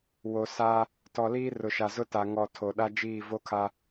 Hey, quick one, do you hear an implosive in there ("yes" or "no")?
yes